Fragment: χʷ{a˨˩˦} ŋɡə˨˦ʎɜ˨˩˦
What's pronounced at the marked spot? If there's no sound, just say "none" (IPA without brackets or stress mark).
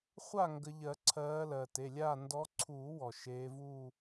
a˥˨